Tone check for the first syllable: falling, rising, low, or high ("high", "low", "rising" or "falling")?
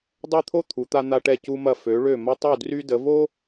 falling